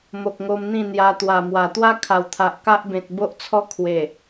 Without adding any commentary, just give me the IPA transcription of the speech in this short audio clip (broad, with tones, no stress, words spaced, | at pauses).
mo˨k̚ŋo˧m n̪ĩ˥˧n̪ja˧t̪wa˨˩mwa˨˩ t̪wa˦kʰa˨˩w t̪ʰa˨ʔka˦ʔbẽ˨t̚ bo˦ʔt͡sʰɔ˦ kʰwe˨˩